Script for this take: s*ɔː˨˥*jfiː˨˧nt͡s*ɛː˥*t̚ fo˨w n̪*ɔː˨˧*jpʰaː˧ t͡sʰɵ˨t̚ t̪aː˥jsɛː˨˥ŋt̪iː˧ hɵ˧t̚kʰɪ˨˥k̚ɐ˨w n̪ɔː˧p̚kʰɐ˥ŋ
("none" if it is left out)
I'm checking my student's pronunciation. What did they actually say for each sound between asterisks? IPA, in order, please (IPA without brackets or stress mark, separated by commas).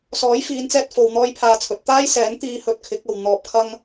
ɔː˨˥, ɛː˧, ɔː˥